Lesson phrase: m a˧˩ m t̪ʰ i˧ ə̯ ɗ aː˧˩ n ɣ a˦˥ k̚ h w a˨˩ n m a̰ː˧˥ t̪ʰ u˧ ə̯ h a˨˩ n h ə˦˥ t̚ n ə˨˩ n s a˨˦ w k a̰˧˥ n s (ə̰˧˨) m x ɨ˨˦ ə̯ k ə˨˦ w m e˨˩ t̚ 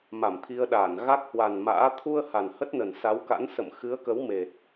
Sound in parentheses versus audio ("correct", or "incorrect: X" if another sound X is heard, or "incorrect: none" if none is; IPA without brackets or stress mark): correct